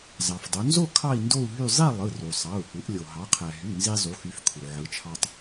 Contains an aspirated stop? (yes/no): yes